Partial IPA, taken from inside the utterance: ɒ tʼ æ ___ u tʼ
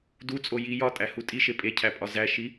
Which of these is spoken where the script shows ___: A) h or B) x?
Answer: A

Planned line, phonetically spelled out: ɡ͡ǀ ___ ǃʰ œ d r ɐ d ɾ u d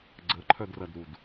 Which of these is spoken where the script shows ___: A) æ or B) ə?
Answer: B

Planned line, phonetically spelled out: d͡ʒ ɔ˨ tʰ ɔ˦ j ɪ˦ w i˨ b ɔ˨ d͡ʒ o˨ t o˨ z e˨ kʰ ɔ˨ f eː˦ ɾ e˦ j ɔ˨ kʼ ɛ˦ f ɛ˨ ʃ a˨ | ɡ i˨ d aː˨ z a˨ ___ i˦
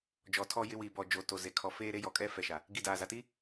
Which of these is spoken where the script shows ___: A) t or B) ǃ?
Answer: A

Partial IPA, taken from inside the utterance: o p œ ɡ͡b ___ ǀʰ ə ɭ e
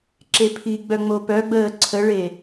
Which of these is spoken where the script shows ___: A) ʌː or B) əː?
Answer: B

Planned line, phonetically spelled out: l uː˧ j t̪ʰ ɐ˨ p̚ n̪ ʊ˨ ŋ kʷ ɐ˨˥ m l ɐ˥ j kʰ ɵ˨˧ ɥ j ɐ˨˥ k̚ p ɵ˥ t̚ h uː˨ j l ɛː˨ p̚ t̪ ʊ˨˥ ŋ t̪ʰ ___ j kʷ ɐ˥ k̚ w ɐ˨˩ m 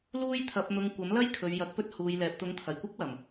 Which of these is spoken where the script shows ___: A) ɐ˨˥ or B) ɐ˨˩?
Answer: B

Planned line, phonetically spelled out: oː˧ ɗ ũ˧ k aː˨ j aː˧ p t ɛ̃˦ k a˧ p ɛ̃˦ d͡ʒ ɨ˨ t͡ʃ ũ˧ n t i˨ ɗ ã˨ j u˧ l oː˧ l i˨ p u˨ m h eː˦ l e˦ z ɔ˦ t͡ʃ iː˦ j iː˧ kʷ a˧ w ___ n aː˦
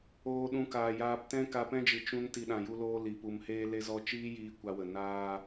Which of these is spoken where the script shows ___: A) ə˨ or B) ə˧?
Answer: A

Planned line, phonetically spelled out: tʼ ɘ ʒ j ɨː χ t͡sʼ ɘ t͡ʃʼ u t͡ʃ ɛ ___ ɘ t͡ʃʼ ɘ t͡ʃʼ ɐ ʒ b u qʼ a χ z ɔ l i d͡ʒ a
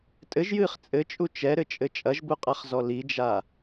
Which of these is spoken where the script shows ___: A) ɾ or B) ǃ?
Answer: A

